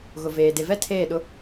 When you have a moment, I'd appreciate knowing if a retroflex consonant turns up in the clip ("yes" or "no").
no